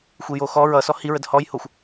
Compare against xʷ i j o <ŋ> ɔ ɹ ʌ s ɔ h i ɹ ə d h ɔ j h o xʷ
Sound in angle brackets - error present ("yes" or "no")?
yes